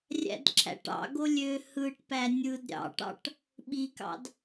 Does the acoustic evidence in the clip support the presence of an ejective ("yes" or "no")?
no